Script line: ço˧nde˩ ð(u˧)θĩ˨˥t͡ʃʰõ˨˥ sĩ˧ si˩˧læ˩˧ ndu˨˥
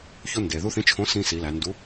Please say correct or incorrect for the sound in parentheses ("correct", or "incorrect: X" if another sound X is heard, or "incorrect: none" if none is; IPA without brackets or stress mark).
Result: correct